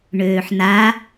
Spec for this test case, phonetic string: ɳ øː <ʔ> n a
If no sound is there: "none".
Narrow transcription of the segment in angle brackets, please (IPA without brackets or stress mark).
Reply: ħ